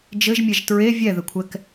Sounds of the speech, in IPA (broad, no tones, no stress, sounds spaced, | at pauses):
d͡ʒ ɘ ʒ mʲ ɛ ʒ t ɹ e vʲ ɛ ð ɘ kʷʰ ɛ k